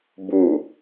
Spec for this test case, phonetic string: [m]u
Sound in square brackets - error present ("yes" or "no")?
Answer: yes